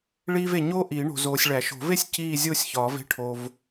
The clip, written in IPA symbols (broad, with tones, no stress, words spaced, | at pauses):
ɭiː˥v e˨ ɲoː˥ʔiː˨˩˦ ɳo̤˨zoː˨sʲɭæ˨˩˦ ʃo̤˨˩˦ve˥˧sʲ ciː˥˧ zʲoː˥˧sʲçɒː˨˩˦v e̤˥ ʈʰo˨v